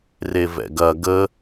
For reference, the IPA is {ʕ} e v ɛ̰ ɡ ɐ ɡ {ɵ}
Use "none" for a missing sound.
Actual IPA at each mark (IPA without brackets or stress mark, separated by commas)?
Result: r, ə